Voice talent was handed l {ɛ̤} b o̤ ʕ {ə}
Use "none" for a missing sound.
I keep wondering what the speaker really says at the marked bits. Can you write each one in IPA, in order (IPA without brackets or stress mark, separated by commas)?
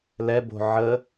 ɛ, ə